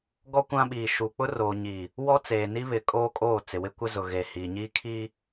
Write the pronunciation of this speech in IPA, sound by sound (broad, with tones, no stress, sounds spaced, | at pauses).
ɡ ɔ˦ kʷ ã˦ ɓ iː˨ ʃ uː˨ k͡p ʊ˦ r oː˨ ɲ i˨ | w ɔ˦ t͡s eː˨ n i˦ β ɪ˨˦ kʼ oː˦ kʼ oː˦˨ t͡s ɪ˨ w ɪ˦ kʷ ɪ˦ z ʊ˨ ɣ eː˨ h iː˨ ɲ iː˦ kʰ i˦